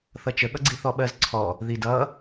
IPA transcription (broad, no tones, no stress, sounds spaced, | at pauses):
θ ʌ t͡ʃ ə ɠ ʌ ɡ͡ǀ i θ ɔ ɓ ɜ z ǀʰ ɔ | ð i d ʌ